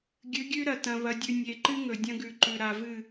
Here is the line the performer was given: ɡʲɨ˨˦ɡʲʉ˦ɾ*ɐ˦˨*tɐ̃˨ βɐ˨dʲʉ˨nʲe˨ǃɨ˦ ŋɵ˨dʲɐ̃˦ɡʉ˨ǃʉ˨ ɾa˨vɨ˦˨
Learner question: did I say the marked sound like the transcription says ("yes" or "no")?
no